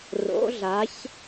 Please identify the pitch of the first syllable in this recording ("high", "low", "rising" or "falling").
rising